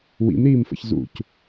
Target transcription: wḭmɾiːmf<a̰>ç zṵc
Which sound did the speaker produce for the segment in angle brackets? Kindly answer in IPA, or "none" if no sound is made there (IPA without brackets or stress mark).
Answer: ə̰